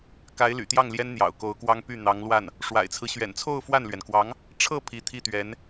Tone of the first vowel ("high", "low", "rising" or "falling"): rising